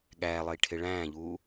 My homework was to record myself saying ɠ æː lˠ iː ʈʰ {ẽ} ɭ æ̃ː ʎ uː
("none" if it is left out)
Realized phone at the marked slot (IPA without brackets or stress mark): e